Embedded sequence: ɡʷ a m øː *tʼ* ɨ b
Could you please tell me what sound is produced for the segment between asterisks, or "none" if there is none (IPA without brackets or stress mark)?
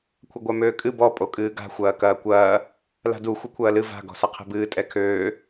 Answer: kʼ